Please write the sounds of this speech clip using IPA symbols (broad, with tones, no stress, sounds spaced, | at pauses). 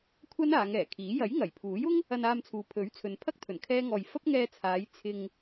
kʷʰ ɐ˥ n aː˨˧ ŋ ɛː˨˩ kʰ iː˨˥ j ɐ˨˥ j ŋ ɐ˨˩ j pʰ uː˨˥ j ʊ˥ ŋ | ɐ˧ n aː˧ m t͡sʰ uː˨ pʰ ɵ˨˥ ɥ t͡sʰ ɵ˨ n pʰ ɐ˥ k̚ t̪ʰ ɵ˨˩ n kʰ ɛː˥ ŋ ɔː˧ j f ɐ˥ p̚ ŋ ɛː˧ t͡sʰ aː˨˧ j t͡sʰ ɪ˧ ŋ